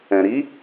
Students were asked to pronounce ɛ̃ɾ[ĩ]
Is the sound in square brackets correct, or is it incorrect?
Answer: incorrect